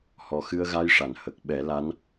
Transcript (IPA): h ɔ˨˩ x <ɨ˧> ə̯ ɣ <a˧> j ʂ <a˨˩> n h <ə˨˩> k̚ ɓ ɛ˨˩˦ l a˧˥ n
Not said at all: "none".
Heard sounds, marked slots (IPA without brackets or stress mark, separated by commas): ɨ˧, a˧, a˨˩˨, ə˨˩